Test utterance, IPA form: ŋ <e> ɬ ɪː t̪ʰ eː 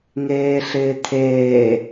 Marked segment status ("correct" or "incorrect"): incorrect